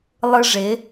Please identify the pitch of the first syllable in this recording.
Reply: high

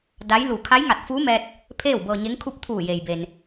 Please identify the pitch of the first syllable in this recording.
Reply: rising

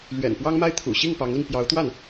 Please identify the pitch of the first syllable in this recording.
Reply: low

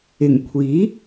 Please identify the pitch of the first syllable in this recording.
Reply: low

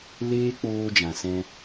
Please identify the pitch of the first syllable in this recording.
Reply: high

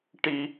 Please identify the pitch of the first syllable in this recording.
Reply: high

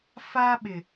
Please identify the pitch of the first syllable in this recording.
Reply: high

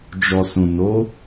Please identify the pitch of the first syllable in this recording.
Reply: low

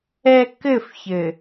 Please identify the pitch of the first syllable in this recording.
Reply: low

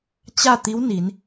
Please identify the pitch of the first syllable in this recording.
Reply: falling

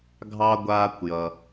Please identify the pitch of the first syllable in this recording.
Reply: high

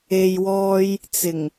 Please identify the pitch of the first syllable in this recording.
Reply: low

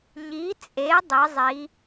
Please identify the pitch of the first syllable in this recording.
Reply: rising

